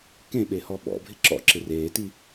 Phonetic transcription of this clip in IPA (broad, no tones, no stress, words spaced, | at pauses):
kẽɓe hɔɓɔ̰bʱɪ ǁɔ̰ ǁɪreːti